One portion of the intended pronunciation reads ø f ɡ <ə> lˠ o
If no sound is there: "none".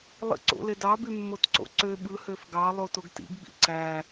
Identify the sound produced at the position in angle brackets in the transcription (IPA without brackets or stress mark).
ɑ